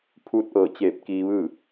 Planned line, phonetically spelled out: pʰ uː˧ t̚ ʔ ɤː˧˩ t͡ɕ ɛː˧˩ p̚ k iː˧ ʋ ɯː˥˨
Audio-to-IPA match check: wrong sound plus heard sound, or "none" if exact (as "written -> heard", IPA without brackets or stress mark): ɛː˧˩ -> eː˧˩